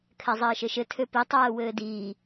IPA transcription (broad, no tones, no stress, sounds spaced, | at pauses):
kʰ ɛ zˤ ɘː ʃ ɘ ʃ ɘ tʰ ø p i tˤ ɛː w ɘː d iː